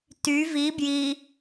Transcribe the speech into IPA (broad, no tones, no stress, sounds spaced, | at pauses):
t y v i b j i